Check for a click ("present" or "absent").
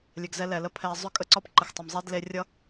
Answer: present